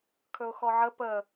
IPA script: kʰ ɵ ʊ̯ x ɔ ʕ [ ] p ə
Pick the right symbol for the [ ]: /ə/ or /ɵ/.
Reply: ə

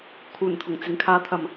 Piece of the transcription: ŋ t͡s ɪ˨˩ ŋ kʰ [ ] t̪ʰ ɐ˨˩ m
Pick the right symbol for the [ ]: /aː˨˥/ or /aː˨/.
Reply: aː˨˥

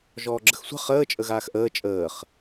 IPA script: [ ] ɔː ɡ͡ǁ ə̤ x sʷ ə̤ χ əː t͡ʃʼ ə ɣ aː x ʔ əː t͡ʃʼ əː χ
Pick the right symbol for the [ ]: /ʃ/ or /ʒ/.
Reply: ʒ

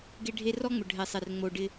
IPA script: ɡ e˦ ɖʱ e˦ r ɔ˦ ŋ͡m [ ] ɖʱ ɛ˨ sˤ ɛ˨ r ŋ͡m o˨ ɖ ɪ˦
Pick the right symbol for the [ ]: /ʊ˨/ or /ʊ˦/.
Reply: ʊ˨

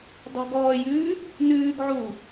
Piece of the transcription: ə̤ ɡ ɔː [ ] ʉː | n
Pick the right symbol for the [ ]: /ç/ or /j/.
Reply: j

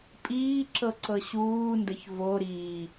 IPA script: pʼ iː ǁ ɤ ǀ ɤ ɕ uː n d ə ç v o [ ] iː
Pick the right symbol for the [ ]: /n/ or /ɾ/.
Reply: ɾ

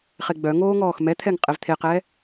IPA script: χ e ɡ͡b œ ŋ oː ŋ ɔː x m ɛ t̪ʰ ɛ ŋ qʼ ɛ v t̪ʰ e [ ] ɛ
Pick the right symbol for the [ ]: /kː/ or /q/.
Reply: q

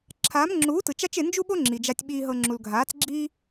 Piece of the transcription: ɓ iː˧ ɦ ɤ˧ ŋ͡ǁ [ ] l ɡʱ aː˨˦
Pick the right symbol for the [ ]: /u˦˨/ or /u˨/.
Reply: u˨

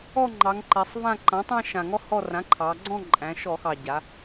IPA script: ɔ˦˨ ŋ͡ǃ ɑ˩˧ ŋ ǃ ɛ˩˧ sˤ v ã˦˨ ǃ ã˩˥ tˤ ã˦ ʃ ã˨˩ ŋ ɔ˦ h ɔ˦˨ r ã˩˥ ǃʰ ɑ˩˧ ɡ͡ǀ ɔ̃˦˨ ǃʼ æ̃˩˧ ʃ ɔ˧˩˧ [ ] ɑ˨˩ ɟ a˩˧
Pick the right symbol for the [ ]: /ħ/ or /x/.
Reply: x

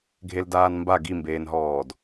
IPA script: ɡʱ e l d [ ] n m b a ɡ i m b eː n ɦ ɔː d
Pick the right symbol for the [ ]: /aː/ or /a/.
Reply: aː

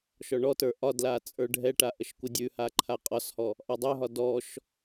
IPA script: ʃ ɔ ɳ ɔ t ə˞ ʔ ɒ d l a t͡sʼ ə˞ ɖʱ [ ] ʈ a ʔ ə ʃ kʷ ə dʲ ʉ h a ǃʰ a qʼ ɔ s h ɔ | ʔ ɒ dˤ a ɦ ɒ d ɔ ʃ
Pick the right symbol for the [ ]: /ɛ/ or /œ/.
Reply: ɛ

